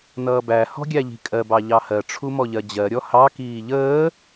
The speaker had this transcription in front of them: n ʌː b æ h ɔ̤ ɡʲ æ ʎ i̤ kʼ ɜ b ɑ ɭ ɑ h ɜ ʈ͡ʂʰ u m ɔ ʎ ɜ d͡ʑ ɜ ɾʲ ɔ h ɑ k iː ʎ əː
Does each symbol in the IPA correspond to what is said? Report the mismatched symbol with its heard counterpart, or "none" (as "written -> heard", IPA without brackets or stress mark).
ɭ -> ʎ